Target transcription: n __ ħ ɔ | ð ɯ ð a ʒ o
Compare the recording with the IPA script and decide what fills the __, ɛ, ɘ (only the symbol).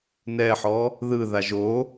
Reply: ɛ